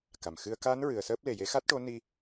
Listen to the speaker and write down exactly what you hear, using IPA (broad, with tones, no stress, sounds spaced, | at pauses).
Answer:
k a˨˩ m x ɨ˧ ə̯ k a˧˥ n ɹ ɨ˨˩ ə̯ s əː˦˥ p̚ l e˨˩ j e˧˥ x a˦˥ t̚ ʈ o˧˥ n i˧